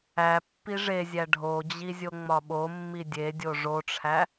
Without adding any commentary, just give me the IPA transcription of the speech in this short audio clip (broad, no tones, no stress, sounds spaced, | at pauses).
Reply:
æ pː i ʐ e zʲ æ ɖʱ o d͡ʑ i zʲ o ŋ͡m ɒ ɓ o mː i dʲ e dʲ o ʐ o ʈ͡ʂʰ æ